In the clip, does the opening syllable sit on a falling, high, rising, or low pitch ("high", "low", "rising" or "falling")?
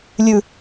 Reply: high